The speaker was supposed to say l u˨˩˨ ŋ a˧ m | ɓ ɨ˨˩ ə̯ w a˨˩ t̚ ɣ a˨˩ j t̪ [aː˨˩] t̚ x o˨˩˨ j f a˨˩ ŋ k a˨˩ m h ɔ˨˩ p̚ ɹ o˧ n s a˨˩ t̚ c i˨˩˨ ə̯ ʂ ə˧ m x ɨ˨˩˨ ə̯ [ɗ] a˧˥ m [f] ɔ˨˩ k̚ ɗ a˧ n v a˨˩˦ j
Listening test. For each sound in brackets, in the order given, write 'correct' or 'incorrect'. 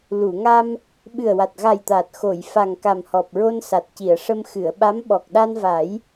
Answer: correct, incorrect: ɓ, incorrect: ɓ

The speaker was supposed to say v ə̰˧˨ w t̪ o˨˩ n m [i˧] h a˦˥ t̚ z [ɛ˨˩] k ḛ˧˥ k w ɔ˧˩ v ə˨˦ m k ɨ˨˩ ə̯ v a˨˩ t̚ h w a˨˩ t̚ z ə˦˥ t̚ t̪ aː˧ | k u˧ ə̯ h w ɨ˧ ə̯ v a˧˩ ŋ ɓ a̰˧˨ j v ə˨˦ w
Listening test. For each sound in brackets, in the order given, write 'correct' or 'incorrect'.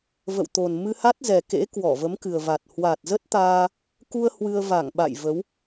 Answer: incorrect: ɨ˧, correct

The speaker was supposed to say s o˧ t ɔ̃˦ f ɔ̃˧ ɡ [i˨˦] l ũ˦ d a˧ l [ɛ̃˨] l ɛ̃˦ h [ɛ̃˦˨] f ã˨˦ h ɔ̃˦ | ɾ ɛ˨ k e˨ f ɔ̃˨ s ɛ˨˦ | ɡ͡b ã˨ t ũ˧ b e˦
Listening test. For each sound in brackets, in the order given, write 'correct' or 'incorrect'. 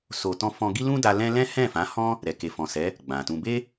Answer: incorrect: i˦, incorrect: ɛ̃˦, correct

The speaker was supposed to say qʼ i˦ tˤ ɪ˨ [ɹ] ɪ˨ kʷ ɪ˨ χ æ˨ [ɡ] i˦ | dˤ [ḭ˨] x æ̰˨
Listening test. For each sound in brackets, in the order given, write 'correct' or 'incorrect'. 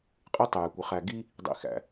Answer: incorrect: j, correct, correct

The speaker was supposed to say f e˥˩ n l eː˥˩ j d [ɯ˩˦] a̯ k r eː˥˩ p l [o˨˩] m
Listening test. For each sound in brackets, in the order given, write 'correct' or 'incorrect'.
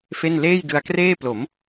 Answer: incorrect: ɯ˧, incorrect: o˩˦

